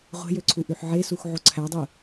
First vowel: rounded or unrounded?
unrounded